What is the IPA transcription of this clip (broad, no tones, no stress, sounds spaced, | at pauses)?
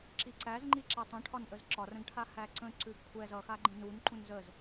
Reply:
ǁ i ǀ æ z ŋ͡ǃ i ǁ æ tˤ ũ ʈʰ ɒ n ʔ ə z ǁ ɒ r ə̃ ɡ ʈʰ a h æ ǀ ə̃ ǀ ʉ ɡ kʷʰ ɛ z ʌ x a ɡ͡ǃ ə̃ n u n ǃ ũ n z ə z